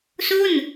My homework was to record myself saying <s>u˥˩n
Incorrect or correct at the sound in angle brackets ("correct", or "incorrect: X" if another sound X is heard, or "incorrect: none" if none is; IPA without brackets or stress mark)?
correct